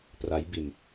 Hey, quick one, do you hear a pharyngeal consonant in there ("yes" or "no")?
no